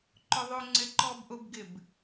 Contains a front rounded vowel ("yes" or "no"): no